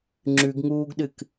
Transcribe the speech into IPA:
ŋ͡ǁ ʉ ɡ ŋ uː ɡ ɗ ɨ k

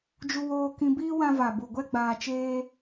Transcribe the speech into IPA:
d͡ʒ u˧ w oː˧ k ĩ˧ b iː˦ w ã˧ v a˨ b u˨ ɡʷ ɛ˦ ɡ͡b aː˧ t͡ʃ eː˦

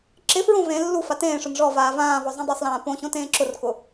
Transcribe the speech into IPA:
ǁ ɪ f ɹ õ v ẽ lː u f a t ẽː ʂ ʊ n ʐ ɔ v aː v ãː v ɔ zˤ õ dˤ o sˤ l ãː p õ ɕ õ t ẽː ǁ ʊ r k ʊ

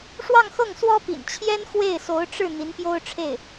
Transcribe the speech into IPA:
ʂ w ɑ˥˧ ŋ x ɤ˥˩ ŋ s w ɔ˥ p ḭ˨˩ n t͡ɕʰ j ɛ˥ n x w e˥˩ ɪ̯ s o˧˥ ʊ̯ ʈ͡ʂ ɻ̩˥˩ n̪ i˧˥ n p j o˥ ʊ̯ ʈ͡ʂʰ e˥˩ ɪ̯

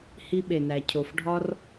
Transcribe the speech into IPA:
h i˧ ɓ e˨ n æ˨ cʰ o˨ f ɖʱ ɒ˧ r

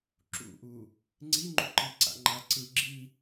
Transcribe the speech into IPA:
ǁ ṵ ʔ u | ŋ͡ǀ i ŋ͡ǃ u ǃ i ǀ a̰ ŋ͡ǃ a ǀ ɯ ɡ͡ǁ i

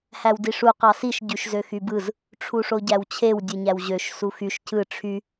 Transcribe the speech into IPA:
h æ w d i ʂ u q ɑ s i ʃ ɟ y ʃ z ø x y b ɯ z | ʈ͡ʂʰ u ʂ o ɟ æ w t͡ɕʰ e w dʲ ɯ ɲ æ w ʑ ø ʃ s u x y ʃ cʰ ɯ ʈ͡ʂʰ y

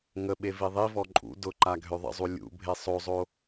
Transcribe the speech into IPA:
ŋ ə ɓ e v i ðˤ i v ɔ ǃʼ ṵ d ʊ ǃ a ɡʱ ø ðˤ ə̰ zˤ u lʲ ṵ bʱ e sˤ o zˤ o

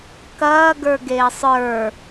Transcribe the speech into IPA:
k ɐː ɡ ə˞ ɡ eː sˤ ə˞

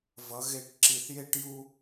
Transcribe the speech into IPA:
v ʌ˩˧ ɣ e˨˩ ʈ ǁ i˨˩ θ j e˧ ʈ j u˧

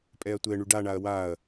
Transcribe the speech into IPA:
pʼ ɛ ɐ̯ tʷ ɛ ɳ y ɖ a ɳ a ɐ̯ w a ɐ̯

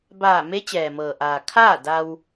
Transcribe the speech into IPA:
b aː˧˩ m e˧˥ t͡ɕ ɛː˩ m ɤː˩ ʔ aː˩ kʰ aː˥˨ d a˧ w

